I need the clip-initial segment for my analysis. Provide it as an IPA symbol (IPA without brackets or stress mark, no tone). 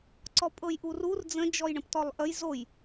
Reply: ǀ